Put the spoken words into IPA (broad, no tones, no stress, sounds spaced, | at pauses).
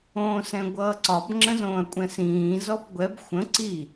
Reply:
õː s ɛ̃ ɡʷ ʌː ǀ ɒ b ŋ͡ǁ ə̃ z õː ɐ̯ kʷʼ ɛ̃ s ĩː z ɔ b ɡʷ ɛ b xʷ ə̃ ǀ i